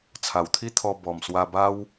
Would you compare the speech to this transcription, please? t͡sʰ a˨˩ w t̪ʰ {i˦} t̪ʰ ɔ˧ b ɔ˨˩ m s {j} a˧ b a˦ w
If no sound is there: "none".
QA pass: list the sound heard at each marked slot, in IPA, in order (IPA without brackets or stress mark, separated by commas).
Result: i˦, w